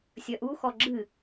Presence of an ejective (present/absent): absent